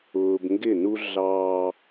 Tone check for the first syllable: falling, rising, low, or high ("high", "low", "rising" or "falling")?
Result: low